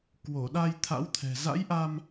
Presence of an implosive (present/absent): present